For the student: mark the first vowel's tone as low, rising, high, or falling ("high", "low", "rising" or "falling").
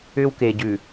high